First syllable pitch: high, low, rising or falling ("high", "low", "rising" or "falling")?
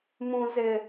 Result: high